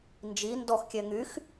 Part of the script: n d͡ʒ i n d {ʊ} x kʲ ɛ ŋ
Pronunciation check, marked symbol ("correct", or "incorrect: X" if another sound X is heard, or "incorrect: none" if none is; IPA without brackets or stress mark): incorrect: ɔ